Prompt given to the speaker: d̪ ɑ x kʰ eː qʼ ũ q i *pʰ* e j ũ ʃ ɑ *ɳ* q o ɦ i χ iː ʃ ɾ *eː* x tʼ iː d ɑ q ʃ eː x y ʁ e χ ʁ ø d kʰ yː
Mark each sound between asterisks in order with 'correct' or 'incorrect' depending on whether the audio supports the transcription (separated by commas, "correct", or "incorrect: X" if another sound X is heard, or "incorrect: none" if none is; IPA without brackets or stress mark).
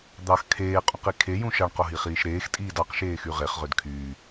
incorrect: kʰ, correct, correct